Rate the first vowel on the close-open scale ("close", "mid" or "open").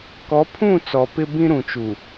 mid